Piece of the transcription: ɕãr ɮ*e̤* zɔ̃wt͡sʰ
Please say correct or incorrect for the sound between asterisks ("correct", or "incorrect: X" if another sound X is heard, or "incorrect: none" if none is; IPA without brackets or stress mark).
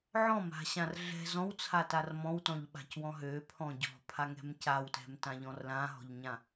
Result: incorrect: ɛ̤